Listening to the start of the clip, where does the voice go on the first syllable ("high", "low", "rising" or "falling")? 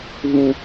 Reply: high